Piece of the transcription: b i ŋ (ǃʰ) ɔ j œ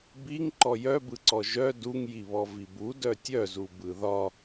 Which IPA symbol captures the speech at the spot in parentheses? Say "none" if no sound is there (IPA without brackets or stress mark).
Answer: ǃ